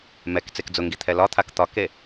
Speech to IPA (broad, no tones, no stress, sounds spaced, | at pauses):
m ɛ k t͡s e k d͡z ʊ ŋ ɡ i t̪ʰ ɛ l ɒ t̪ʰ a k t̪ ɒ k e